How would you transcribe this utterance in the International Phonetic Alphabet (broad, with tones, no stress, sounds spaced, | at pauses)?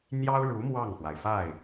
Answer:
n̪ j ɑ˥ ʊ̯ ɻ u˧˥ m w ɑ˥˩ ŋ x w a˩ ɪ̯ f a˥˩ ɪ̯